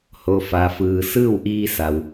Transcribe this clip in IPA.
h o˩ f a˩ f ɯː˩ s ɯː˥˨ w ʔ iː˧ s a˩ w

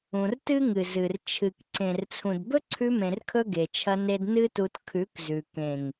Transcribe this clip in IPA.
ũ˨ r t ɨ˦ ŋ ɨ˨ z ɨ˨ r t͡ʃʰ ɨ˨ k ǀ ẽ˨ r t͡sʰ ũ˨ d b ɵ˦ ǀʰ ʉ˧ m ẽ˨ r kʰ ɵ˧ ɡ e˨ t͡ʃʰ ɐ˧ n e˧ d n ɨ˦ t u˧ t kʰ ʉ˨˦ k z ʉ˨ k ẽ˨ ŋ

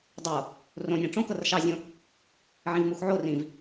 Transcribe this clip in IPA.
dˤ o | r õ nʲ ã ʈ͡ʂ õ k ɤ r ʃ ɑ zʲ õ | ʕ ĩ v m u x ʕ o r ĩ v

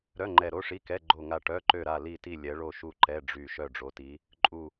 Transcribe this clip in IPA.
ɾ œ˧˥˧ ŋ͡ǃ ɛ˦˨ ɾ o˧˥˧ ʂ i˧˥˧ k ɛ˧˥˧ ɡ͡ǃ o˦˨ ŋ a˦˨ ʈ œ˧˥˧ ǃ ø˦˨ ɾ a˦˨ l i˦˨ t i˦˨ lʲ ɛ˨˦ ɭ o˦˨ ʃ u˦˨ ǃ ɛ˧˥˧ ɖ͡ʐ y˦˨ ʃ œ˦˨ ɖ͡ʐ o˨˦ t i˨˦ | ǃʼ u˦˨

